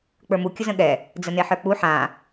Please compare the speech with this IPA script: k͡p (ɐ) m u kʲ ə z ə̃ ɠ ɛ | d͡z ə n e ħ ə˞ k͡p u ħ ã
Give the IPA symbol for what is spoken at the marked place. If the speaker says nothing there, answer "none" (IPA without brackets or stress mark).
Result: ə˞